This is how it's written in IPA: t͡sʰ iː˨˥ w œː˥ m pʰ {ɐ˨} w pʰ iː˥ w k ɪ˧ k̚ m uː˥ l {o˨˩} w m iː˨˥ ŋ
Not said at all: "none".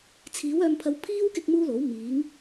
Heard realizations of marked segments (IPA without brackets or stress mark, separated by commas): ɐ˥, o˨˥